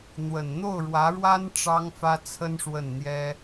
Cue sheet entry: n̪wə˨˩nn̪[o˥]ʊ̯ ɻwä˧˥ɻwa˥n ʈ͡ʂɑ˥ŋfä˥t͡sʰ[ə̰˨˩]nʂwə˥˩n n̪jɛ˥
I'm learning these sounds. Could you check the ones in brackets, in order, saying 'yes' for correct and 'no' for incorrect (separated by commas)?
no, no